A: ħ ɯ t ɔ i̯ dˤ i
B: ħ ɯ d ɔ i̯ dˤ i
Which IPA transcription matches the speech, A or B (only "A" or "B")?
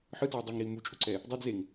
A